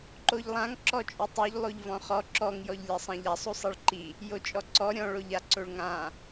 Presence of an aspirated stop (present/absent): absent